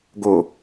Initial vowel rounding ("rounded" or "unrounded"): rounded